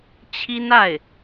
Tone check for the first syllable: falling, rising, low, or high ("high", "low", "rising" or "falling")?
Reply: high